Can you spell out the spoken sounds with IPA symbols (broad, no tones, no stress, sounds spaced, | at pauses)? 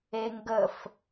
e ŋ ɡ ə f